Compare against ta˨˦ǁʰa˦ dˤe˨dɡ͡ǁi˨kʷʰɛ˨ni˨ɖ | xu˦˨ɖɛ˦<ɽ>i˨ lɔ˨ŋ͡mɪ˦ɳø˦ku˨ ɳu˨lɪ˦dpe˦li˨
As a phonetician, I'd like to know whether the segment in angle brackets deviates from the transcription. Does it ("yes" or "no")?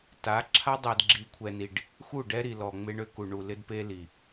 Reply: yes